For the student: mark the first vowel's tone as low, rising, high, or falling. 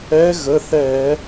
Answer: rising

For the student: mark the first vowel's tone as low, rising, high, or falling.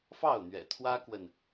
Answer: falling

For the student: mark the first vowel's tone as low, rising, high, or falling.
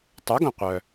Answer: rising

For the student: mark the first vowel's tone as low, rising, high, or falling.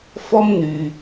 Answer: high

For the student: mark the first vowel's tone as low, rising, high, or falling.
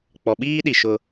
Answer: low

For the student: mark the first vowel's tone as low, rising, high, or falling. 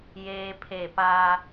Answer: high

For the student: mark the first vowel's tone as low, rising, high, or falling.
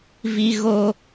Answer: high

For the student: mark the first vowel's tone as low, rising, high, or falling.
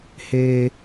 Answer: high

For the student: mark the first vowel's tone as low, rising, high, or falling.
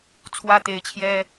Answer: high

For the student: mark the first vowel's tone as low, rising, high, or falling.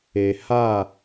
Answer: low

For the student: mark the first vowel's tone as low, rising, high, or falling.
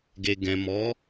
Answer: low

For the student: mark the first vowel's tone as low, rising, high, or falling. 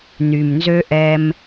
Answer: low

